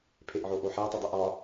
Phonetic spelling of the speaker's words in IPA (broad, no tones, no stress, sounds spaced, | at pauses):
pʰ e ʔ ʕ o ʔ o ħ æ tˤ u dˤ i ʔ ɒ